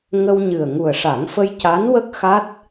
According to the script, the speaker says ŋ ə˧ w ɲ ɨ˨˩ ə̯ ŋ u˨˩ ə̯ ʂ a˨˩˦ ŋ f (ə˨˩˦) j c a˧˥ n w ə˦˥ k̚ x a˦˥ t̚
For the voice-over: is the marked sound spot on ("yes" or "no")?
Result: no